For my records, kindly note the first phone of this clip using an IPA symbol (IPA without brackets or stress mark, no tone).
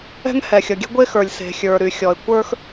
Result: ɛ̤